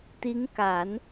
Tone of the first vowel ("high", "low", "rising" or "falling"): rising